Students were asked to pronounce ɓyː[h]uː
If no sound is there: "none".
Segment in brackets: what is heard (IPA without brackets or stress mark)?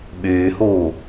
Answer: h